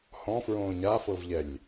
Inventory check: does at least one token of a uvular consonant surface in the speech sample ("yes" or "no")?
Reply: no